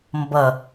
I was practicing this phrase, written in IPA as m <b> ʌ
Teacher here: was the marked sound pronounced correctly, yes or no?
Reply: yes